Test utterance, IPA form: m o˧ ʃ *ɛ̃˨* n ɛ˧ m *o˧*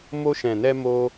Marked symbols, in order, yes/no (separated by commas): yes, yes